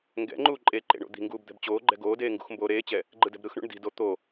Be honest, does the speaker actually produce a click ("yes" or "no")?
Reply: yes